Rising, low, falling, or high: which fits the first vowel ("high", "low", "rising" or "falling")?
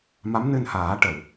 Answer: rising